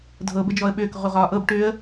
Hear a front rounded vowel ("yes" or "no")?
yes